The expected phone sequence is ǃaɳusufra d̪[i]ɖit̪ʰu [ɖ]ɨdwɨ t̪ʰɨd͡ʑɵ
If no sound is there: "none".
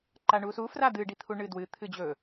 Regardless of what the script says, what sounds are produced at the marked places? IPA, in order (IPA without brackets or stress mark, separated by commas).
ɨ, ɳ